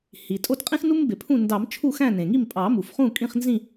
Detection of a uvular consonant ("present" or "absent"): present